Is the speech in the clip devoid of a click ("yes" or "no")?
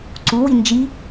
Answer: no